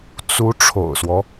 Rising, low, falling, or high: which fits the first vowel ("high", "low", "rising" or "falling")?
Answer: rising